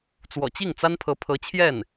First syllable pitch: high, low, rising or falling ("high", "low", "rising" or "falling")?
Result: low